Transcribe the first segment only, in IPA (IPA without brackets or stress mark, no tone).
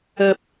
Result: ɐ